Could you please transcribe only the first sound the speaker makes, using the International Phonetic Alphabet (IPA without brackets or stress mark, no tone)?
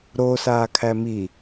ɾ